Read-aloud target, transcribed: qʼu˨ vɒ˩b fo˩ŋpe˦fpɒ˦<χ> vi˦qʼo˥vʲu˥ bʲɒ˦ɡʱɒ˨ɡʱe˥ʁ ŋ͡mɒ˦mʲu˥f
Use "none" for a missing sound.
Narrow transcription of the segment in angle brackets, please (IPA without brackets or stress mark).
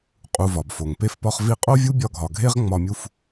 χ